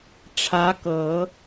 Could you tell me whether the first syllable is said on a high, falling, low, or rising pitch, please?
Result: rising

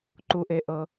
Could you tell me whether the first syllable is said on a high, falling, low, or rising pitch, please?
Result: low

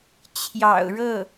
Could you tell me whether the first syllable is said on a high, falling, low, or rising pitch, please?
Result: low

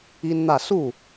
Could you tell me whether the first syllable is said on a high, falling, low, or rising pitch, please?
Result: high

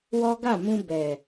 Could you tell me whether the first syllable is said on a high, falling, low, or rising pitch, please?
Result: high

